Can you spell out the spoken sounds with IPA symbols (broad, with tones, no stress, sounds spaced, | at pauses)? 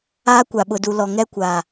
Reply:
aː˦ kʷ a˨ ɓ ʊ˨ d u˨ l ɔ˨ ŋ ɛ˦ kʷ aː˨